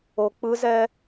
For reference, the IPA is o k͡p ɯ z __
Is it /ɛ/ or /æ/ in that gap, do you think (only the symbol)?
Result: ɛ